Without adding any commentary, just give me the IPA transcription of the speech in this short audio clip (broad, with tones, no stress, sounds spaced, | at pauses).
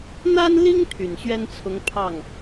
n̪ a˥ n l i˥ ŋ t̪ʰ y˨˩ n ɕ ɥ ɛ˥ n t͡sʰ ʊ˧˥ ŋ pʰ ɑ˥˩ ŋ